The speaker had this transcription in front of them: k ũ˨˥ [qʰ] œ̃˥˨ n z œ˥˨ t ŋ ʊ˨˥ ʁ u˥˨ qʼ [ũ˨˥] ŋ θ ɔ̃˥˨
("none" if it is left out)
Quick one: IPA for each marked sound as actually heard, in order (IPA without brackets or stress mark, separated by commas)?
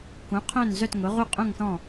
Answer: qʰ, ũ˥˨